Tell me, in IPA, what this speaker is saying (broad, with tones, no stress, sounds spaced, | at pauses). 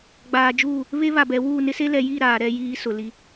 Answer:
ɡ͡b aː˨ d͡ʒ uː˦˨ | β e˦ β a˨ b ɛ˨ w uː˦˨ n ɪ˦ s e˦ l ɛ˨ j i˦˨ ɾ aː˨ ɾ ɛ˦ j iː˦ s ʊ˨ l i˦